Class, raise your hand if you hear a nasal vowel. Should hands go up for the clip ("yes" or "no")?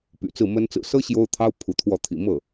no